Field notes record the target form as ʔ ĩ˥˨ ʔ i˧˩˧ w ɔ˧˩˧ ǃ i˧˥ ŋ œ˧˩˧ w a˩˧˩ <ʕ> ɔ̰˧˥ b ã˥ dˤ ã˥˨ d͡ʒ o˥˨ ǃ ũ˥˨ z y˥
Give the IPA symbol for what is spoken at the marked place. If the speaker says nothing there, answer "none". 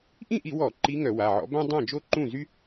ʕ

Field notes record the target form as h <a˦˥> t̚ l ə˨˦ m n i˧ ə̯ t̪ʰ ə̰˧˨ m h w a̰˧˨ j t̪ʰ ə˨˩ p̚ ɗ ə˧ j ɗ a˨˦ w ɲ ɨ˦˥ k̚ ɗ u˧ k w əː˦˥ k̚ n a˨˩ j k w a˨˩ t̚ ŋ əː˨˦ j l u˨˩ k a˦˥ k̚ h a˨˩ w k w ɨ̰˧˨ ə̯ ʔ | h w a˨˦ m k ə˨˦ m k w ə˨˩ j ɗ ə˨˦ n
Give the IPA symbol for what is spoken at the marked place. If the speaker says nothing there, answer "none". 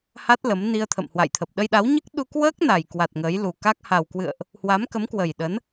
a˦˥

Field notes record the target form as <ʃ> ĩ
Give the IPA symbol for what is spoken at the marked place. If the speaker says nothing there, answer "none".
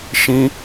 ʃ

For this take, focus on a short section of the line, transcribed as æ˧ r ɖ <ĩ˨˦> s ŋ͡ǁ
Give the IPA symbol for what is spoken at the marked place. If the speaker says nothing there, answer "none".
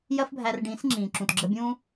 ĩ˨˦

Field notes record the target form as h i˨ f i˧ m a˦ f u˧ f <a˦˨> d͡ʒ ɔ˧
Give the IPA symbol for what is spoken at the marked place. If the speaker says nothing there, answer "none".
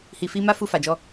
a˨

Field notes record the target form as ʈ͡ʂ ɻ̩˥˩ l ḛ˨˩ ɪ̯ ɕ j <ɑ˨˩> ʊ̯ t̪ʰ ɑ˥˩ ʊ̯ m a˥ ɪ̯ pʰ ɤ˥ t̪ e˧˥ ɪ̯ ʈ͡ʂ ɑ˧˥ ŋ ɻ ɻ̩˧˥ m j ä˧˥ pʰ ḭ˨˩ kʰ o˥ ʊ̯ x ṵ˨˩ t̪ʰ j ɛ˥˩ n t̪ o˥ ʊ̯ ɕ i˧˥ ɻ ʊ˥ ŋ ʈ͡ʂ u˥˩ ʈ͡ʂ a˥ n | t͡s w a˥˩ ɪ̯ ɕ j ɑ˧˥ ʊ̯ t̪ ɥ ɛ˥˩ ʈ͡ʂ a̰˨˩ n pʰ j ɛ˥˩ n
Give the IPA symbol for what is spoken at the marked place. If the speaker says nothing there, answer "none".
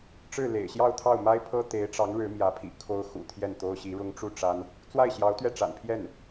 ɑ˥˧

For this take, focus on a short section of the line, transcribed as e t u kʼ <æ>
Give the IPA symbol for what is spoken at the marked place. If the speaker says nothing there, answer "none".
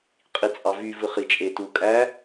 æ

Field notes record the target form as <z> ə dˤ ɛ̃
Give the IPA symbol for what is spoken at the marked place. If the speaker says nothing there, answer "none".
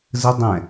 z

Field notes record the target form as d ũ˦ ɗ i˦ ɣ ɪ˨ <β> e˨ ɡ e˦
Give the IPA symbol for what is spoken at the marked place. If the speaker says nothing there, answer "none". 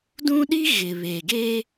β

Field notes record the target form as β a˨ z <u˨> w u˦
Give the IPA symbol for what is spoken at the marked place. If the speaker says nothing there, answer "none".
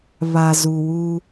u˨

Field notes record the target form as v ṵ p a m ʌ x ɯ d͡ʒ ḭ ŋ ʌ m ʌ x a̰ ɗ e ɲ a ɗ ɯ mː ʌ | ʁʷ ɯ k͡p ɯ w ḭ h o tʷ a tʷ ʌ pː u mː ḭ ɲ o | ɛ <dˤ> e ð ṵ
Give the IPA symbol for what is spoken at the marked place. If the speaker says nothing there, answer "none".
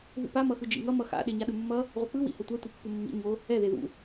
ð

